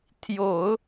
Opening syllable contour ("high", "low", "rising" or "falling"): low